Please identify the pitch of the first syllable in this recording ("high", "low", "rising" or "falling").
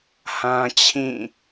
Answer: high